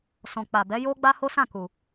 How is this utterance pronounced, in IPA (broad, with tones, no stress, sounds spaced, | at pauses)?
s ɔ̃˨ k͡p a˨ b ɛ˨˦ j o˦ ɡ͡b a˦ h o˦ s ã˦˨ k u˨